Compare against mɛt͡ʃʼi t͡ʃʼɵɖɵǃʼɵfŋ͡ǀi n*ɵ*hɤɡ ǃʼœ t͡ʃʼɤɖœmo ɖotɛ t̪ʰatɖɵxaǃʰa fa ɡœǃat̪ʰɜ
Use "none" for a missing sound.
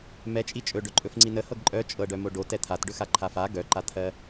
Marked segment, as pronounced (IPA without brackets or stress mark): ə